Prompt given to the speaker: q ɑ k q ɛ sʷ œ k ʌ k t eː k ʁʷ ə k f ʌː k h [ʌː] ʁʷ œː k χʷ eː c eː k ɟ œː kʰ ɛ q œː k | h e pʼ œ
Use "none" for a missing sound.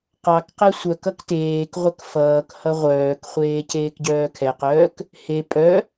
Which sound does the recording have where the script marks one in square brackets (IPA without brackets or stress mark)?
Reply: ʌ